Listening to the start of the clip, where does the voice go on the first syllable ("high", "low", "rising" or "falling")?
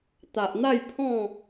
low